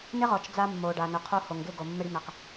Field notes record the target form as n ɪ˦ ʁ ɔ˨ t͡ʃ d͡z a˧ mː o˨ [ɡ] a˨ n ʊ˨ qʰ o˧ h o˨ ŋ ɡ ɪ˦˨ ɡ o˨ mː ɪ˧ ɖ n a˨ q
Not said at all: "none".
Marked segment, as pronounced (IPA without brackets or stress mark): ɖ